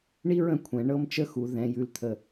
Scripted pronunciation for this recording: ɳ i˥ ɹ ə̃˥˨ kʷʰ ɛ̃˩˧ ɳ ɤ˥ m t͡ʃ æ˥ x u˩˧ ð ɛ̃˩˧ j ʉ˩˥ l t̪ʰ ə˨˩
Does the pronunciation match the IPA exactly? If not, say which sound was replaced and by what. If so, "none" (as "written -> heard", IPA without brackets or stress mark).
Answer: æ˥ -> ə˥